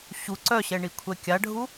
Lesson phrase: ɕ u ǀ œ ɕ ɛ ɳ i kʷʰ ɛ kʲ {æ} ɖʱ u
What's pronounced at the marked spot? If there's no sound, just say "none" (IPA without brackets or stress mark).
a